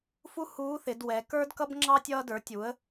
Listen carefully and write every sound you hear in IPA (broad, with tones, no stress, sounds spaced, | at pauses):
f u˥ h uː˧˥ θ ɪ˩˧ d w ɛ˩˧ k ə˞˥ d k ʌ˥ b ŋ͡ǁ ɑ˥ tʲ ʌː˧ d ə˞˩˧ tʲ u˩˧ ə̯